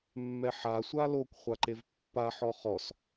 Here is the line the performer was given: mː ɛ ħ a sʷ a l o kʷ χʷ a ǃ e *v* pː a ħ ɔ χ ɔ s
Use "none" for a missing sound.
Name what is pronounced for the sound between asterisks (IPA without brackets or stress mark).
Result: v